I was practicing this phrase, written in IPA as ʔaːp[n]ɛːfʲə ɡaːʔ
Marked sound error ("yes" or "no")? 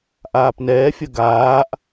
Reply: no